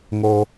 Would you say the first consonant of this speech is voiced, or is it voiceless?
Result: voiced